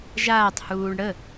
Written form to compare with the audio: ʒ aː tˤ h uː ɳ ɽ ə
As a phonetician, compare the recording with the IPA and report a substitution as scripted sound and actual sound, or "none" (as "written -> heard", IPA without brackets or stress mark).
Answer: none